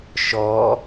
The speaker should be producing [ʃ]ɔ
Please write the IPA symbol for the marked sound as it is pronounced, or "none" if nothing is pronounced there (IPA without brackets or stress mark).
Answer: ʃ